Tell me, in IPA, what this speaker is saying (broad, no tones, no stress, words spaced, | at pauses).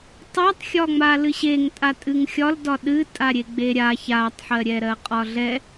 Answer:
tˤatˤxʲɒŋ͡ma lɨɕeŋtʼa tʼɨŋxʲɒl dɒɗɨ tʼaɾʲeɡ͡beɾʲa çatˤħɜɾʲɛɾɜ qʼɒɮɛ